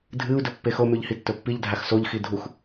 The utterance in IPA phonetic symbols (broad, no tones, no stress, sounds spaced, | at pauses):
dʱ ɨ u̯ d ɵ pː e x o m ʉ ʎ h i tː ɵ pː i ʎ dʱ a x s o ʎ x i dʱ u x